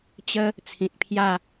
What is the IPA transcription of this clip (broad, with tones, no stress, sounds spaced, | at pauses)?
t͡ɕ ə˦ | t͡sʰ ĩ˨ t̚ pʰ j a˥˧